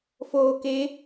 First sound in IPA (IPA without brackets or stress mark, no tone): f